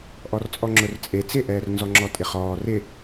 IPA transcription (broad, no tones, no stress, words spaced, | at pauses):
ʔɔrt͡sʼɔŋ͡ǁʊrt͡sʼe t͡sɪʔɛːrnzɔŋ͡ǁɔ tʼɪχɔː rɪ